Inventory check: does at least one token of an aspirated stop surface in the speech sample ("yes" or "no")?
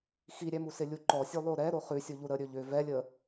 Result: no